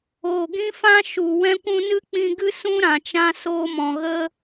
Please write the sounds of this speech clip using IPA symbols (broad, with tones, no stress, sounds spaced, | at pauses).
oː˨ ɡ ĩ˦ f ã˦ ʃ u˨ w ɛ̃˧ kʷ ũ˧ n ɨ˦ k͡p ĩ˧ ɡ ɨ˦ s ũ˦ ɾ ã˨ t͡ʃ ã˧ s oː˧ m ɔ̃˨ ɣ ə˦